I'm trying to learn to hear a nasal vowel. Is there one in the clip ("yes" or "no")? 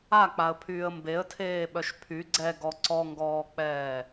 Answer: no